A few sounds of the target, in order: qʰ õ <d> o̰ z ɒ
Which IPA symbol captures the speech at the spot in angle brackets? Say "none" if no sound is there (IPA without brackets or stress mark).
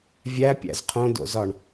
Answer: d